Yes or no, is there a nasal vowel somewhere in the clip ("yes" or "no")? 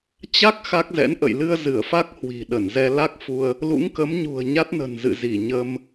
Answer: no